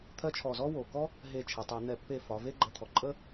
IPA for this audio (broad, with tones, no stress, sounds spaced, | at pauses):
t̪ʰ ɜ˥ t͡ʃʰ ɔ˧˩ z ɔ˥ w o˩ k ɔ˥ | ɦ e˧˩ t͡ʃʰ ɛ˩ tˤ ɛ˧˩˧ n̪ ɛ˧˩˧ pː e˧˩ f ɒ˩˧ v e˥ ɡ͡ǃ ə˧˩˧ t̪ʰ ɔ˩ ǃʼ ə˥